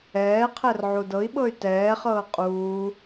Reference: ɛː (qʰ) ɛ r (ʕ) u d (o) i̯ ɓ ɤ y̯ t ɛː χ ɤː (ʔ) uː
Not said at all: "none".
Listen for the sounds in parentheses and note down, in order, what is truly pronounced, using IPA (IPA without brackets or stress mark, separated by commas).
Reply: qʰ, ʕ, ɤ, qʼ